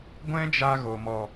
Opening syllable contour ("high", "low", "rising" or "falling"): high